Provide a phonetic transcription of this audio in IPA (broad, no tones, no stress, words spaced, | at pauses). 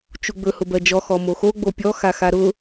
t͡ʃuɡ͡bɵ hʊbɜd͡ʒɔ xɔmoxo ɡ͡bopʲɔ xaxaɾʊ